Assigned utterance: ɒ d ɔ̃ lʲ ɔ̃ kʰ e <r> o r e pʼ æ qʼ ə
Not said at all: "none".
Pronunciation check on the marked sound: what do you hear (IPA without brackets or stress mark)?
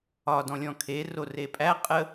r